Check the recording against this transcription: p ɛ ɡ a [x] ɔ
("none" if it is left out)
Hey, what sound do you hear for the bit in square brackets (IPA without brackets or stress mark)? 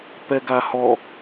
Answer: h